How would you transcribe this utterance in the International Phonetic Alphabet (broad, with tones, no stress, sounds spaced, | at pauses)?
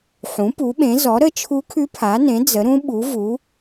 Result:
ħ ũ˩˥ p u˩˥ ɓ ẽ˩˥ z ɔ˩˥ ɾ ə˧˥ t͡ʃʰ u˧˥ kʰ ʉ˧˥ pʰ a˩˥ n ẽ˩˥ d͡z ə˩˥ ɾ ũ˧˥ ɓ u˩˥ v u˩˥